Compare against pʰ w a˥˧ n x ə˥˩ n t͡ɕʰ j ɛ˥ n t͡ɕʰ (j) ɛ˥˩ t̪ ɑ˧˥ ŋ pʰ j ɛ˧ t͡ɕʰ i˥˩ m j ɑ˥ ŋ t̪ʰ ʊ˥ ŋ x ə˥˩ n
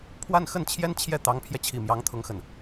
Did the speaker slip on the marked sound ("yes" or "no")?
no